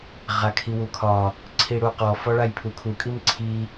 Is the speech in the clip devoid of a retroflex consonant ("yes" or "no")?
no